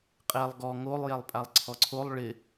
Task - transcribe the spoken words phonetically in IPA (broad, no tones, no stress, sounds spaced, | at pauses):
qʼ ɛ lˠ ɡ ɔ ŋ o lˠ j ɛ lˠ pʼ a lˠ ǀʰ ɔ ǀʰ o lˠ ɭ ɪ